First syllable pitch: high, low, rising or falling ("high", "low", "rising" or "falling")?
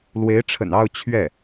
rising